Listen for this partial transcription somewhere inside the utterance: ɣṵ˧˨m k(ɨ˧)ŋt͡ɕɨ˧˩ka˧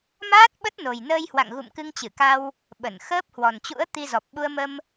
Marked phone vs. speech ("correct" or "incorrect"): correct